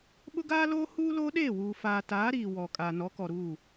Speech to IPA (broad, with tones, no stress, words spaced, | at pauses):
ɓʊ˦ɡaː˦loː˦ huː˦loː˦ ɗeː˦˨wuː˨ faː˨taː˨˦ ɾiː˨wɔ˨ kʼaː˨nɔ˨˦kɔ˨ɾuː˦˨